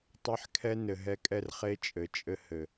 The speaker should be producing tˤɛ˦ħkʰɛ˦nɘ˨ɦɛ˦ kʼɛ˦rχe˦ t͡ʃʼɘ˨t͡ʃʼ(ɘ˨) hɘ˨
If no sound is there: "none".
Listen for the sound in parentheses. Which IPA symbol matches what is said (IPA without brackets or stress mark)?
ɘ˦